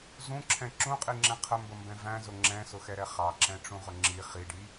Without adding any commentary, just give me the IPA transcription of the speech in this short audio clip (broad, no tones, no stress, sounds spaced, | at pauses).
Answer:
z ũ ǁʰ ɛ̃ ǁ ũ qʼ i ŋ͡ǁ ɛ̃ qʰ ə m b ə m b ɛ̃ v æ̃ z ʊ ŋ͡ǁ ɛ̃ s ʊ x ɛ ɾ ɛ χ ɑ ǁ ɛ̃ ʈ͡ʂ ũ ʁ ʊ ŋ͡ǁ i χ i ɖ i